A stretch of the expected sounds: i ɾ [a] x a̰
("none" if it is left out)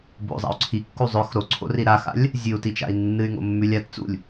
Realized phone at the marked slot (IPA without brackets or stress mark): a